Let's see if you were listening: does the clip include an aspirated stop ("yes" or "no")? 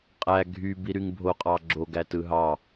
no